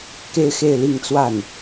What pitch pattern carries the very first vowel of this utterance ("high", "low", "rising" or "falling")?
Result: high